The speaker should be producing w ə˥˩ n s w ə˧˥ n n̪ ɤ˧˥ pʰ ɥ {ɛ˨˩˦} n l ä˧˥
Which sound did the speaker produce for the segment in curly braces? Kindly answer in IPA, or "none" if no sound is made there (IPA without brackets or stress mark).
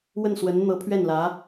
ɛ˥˩